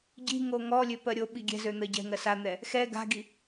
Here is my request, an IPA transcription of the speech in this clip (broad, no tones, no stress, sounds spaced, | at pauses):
ɟ i̤ ŋ o ŋ ɔ lʲ ø p ɜ ɾʲ o ɓ i ɡʲ ɛ̤ z ø n̪ ɜ ɟ ɛ̤ ŋ ɜ s a n̪ ɛ | x ɛ ɡ a̤ ɡ i